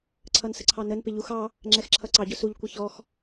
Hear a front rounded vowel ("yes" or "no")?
no